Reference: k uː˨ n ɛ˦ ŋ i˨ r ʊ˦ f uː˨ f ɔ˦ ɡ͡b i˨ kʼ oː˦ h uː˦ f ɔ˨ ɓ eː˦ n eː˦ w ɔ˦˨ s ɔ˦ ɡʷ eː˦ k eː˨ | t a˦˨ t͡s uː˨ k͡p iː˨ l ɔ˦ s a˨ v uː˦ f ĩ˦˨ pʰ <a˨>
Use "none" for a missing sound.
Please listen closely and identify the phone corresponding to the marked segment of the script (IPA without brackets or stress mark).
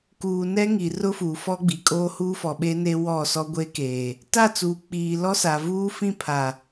a˨